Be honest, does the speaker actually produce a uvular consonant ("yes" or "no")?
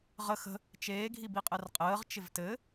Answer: yes